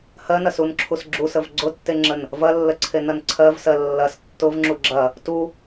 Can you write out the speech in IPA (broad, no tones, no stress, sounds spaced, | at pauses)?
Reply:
h ɜ n ɐ s u n ǁʰ u s ɡ͡ǁ u s ə v ɡ͡ǀ ʊ tː e ŋ͡ǁ ə n | v ɐ lː ə ǀʰ e n ɐ n ǀʰ ɜ v s ɜ lː ɐ s tː ʊ v ŋ͡ǁ u ɡ͡ǁ ɐ | t u